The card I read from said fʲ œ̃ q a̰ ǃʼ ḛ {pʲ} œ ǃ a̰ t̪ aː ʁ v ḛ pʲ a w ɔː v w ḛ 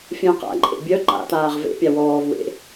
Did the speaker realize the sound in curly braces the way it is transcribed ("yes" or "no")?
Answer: no